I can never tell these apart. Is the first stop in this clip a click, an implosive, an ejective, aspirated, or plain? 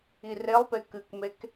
plain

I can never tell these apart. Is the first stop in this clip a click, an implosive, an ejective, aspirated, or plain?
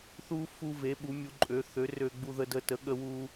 implosive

